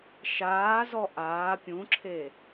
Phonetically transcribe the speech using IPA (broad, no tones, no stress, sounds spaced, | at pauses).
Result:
ʃ aː z ɔ ʔ aː pʲ ũ ǁʰ e